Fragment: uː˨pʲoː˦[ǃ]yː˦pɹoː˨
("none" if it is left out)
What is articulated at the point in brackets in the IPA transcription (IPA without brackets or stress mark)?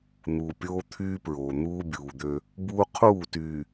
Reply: t̪ʰ